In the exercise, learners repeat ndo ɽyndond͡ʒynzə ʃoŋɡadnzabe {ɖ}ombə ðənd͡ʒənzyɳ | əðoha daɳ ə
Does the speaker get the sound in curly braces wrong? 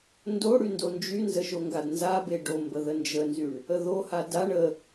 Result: no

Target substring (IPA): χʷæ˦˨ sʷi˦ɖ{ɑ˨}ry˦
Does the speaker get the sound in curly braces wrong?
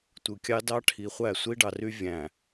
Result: no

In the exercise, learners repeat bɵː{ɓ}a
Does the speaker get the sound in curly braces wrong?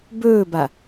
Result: yes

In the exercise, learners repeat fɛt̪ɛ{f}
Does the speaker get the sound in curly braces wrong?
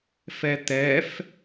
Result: no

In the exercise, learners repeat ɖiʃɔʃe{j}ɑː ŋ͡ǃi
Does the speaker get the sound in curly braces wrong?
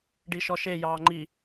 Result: no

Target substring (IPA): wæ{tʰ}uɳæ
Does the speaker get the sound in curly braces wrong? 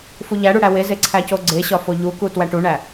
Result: yes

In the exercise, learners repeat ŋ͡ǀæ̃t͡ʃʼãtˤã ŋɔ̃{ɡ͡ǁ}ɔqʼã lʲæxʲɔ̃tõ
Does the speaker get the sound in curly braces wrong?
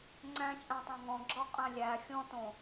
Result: no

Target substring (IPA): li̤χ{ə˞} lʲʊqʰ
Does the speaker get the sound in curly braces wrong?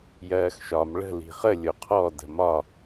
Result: yes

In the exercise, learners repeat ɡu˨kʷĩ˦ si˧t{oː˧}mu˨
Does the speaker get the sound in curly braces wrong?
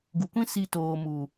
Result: yes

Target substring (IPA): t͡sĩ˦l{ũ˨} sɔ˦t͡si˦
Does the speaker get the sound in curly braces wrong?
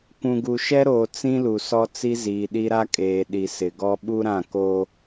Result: yes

